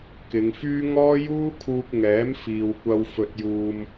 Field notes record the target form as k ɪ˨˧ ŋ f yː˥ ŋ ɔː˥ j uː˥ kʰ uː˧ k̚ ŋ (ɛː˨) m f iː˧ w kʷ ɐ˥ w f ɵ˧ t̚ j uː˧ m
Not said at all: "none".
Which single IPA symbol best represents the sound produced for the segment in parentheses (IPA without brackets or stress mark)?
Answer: ɛː˨˥